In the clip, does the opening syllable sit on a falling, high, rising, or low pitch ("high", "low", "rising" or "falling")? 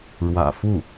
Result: low